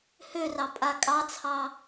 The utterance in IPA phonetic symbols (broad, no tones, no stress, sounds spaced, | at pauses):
h ø r ɑ pʼ a kʼ ɑ t͡sʰ ɑ